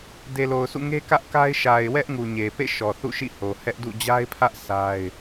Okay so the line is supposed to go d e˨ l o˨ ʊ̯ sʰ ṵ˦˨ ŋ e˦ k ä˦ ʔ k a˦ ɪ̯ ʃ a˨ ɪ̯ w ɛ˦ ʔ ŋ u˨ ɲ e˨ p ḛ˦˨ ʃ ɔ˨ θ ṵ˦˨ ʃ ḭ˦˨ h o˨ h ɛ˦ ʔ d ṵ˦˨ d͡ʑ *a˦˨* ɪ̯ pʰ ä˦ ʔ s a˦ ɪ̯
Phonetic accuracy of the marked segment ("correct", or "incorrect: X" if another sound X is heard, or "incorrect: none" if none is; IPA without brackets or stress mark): incorrect: a˦